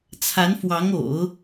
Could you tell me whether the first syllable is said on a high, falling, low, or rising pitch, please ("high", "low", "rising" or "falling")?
rising